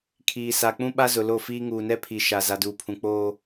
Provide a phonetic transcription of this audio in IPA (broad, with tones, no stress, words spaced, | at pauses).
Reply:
kʰiː˨sa˨k͡pũ˦ ɓa˦zʊ˨ lo˦˨fiː˦ ŋuː˨nɛ˦ pʰi˨ ʃa˨ za˨duː˨pʰũ˨ k͡poː˦